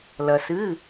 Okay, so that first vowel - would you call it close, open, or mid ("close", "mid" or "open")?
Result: open